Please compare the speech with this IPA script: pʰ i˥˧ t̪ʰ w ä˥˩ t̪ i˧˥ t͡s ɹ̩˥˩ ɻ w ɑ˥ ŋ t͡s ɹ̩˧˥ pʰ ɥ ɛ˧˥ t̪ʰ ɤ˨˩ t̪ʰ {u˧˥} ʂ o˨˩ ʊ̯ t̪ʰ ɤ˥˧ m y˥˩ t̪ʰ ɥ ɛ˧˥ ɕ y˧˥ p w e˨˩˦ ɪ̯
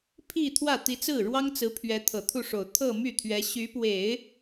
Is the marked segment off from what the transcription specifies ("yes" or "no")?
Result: yes